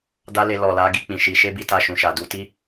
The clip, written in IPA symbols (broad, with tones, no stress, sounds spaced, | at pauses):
d a˦ l e˧ l ɔ˨ l a˨˦ ɡ i˦˨ k͡p ĩ˨ ʃ i˨˦ ʃ e˦ b i˦˨ t a˧ ʃ ũ˨ ʃ a˨ d u˧ t i˦